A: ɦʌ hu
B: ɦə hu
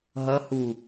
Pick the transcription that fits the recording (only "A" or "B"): A